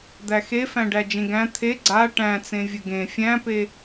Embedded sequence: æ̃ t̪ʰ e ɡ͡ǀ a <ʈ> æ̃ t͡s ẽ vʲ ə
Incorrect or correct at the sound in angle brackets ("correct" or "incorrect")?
correct